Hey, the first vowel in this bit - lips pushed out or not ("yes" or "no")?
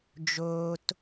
yes